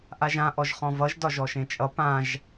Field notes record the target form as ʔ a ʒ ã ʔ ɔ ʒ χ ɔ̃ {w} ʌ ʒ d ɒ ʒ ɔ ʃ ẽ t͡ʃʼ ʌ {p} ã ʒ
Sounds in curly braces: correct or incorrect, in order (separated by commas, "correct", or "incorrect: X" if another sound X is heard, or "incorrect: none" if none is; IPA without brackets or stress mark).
incorrect: v, correct